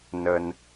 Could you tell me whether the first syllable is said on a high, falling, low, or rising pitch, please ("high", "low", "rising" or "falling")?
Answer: low